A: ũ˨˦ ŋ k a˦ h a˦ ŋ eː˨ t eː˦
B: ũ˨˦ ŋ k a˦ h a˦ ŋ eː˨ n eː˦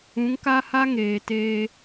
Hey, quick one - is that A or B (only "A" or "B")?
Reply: A